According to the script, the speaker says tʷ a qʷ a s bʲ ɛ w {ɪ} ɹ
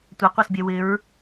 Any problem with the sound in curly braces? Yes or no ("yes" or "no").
no